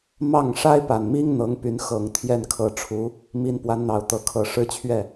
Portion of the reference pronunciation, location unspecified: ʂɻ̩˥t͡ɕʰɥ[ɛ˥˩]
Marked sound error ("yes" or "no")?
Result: no